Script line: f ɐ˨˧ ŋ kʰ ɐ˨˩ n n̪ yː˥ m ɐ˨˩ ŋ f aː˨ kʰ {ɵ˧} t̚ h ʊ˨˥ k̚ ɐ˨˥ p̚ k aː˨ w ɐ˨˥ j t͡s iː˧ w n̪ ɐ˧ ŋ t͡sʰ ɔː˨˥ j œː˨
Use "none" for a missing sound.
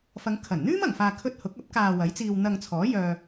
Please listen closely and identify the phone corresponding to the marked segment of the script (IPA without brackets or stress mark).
ɵ˧